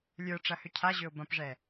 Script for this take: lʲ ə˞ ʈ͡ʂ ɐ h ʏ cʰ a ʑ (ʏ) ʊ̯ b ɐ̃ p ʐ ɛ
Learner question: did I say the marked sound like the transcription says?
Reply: yes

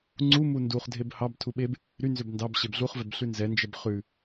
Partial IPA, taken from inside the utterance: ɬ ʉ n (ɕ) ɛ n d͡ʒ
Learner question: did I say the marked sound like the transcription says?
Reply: no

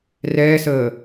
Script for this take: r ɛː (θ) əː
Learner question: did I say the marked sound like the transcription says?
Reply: no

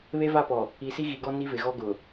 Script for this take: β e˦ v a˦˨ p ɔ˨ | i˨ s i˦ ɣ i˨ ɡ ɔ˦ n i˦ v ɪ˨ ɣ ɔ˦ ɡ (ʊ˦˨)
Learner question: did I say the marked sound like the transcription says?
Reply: no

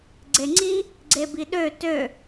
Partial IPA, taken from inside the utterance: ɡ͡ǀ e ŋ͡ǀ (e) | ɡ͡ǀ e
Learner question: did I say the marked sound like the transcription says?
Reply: no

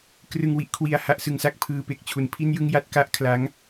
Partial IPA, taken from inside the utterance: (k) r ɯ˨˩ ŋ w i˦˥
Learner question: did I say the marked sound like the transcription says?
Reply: yes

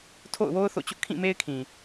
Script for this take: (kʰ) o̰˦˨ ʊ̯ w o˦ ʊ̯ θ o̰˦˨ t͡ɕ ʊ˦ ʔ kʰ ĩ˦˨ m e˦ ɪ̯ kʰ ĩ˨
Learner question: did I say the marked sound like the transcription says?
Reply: no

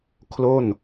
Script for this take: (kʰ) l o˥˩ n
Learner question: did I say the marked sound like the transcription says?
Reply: yes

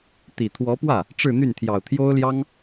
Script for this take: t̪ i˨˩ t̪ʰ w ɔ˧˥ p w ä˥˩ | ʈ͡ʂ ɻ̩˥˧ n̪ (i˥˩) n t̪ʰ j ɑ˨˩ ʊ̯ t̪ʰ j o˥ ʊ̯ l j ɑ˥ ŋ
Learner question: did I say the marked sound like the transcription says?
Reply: no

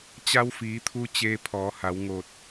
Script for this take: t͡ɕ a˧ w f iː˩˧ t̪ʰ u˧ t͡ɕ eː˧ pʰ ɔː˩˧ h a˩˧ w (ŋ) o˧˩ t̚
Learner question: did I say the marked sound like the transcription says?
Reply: yes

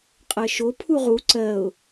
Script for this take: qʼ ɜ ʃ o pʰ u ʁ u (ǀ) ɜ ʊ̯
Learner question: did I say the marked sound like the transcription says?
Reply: yes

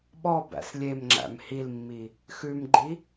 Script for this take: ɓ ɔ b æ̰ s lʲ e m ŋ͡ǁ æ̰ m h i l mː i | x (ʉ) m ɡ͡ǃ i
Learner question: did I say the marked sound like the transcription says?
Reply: yes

